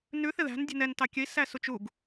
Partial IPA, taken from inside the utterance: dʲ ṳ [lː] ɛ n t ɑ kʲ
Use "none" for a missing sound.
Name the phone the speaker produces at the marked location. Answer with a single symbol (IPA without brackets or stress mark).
n